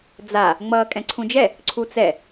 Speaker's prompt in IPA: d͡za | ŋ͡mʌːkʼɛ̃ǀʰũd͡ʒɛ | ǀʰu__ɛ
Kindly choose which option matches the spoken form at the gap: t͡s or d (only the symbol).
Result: t͡s